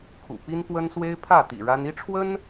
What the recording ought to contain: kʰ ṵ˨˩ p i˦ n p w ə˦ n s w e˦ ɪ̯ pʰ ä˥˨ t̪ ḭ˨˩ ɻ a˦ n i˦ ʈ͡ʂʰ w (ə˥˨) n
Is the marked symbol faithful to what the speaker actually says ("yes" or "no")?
no